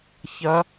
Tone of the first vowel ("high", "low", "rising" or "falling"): rising